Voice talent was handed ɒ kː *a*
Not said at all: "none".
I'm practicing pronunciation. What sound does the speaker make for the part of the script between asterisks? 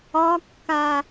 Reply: a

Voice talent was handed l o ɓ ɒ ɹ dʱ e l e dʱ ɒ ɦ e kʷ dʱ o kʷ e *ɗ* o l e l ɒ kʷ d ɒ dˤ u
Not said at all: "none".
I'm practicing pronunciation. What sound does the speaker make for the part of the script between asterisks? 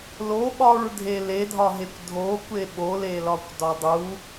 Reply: ɓ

